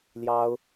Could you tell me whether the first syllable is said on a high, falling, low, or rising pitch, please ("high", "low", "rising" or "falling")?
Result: high